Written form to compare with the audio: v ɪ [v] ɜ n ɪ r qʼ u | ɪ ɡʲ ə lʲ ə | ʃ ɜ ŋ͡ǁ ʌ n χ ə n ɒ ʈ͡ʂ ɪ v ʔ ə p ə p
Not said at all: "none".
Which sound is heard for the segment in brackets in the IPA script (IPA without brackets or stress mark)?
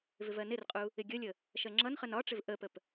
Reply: v